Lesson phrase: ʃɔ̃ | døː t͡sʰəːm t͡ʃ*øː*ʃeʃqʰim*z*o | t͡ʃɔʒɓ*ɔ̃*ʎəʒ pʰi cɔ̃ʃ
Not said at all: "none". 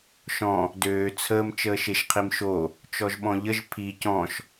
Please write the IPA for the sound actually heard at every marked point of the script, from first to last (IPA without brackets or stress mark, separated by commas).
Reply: əː, ʃ, ɔ̃